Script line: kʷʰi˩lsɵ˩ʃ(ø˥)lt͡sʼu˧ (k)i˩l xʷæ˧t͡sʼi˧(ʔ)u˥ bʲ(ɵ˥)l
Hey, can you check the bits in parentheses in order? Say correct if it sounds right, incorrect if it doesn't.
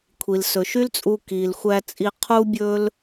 incorrect: y˥, correct, incorrect: qʰ, correct

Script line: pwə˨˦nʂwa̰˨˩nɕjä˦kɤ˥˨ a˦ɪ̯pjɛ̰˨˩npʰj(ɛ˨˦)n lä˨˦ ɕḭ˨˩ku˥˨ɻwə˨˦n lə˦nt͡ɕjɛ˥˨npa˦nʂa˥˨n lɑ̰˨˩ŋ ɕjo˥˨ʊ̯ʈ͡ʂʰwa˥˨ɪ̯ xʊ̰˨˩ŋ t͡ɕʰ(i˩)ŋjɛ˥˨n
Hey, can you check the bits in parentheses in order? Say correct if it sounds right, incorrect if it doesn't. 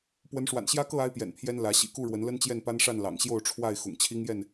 incorrect: ɛ˦, incorrect: i˦

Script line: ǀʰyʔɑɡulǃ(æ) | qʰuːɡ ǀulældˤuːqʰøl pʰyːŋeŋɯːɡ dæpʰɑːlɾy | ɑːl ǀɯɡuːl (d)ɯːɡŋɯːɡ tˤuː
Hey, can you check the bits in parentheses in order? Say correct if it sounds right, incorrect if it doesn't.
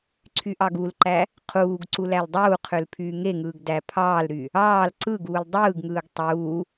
correct, incorrect: dˤ

